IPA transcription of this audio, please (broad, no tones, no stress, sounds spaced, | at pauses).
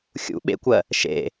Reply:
xʲ ṵ ɓ ḛ kʷ ɜ | ʃ ḛ